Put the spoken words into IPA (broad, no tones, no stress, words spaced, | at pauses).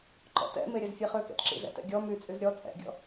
ǃɔ̰tɛ̰me ɾʲɛzfʲeχøkɛ̰t ǁḭzɛ̰tɛ̰ ɡʲɔ myt͡sʼyz ɾʲɔ t͡sʼɛ̰ɡʲɔ̰